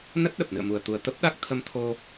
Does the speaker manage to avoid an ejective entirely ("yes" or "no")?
yes